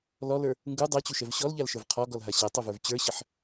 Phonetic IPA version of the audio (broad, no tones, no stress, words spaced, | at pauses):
lɔlə˞ | ŋɡu dˤat͡ɕuʃɛv ɕɔlʎalʃə˞v qʰɔɡɔlɦa ɕɛtˤuvə˞v t͡ɕə˞ɕəħ